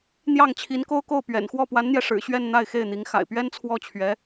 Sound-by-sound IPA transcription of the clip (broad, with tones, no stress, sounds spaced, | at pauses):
n̪ j ɑ˥˩ ŋ t͡ɕʰ i˧˥ n k o˥ ʊ̯ k o˥˩ ʊ̯ p ɥ ɛ̰˨˩ n x w ɔ˥˩ p w a˧˥ n n̪ j ɛ˧ ʂ ɻ̩˨˩ ɕ ɥ ɛ˥˧ n n̪ a˥˧ ɪ̯ x e˥˩ ɪ̯ n̪ i˧˥ ŋ x a̰˨˩ ɪ̯ p ɥ ɛ˥ n t͡sʰ w ɔ˥˩ t͡ɕʰ ɥ ɛ˧˥